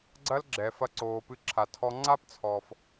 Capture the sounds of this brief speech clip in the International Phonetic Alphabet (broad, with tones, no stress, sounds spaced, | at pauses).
ɡ͡ǀ ɐ˥ l ɡ͡ǁ ɛ˩ f ɐ˧ ǀ oː˩ p ɨ˧ ǁʰ a˩ tʰ ɔ˧ ŋ͡ǀ a˥ p t͡sʰ ɔː˩ f